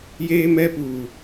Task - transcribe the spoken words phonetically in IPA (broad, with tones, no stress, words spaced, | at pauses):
jeː˦mɛ˦puː˨